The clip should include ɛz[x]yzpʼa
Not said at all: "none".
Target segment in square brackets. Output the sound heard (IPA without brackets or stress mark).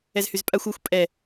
h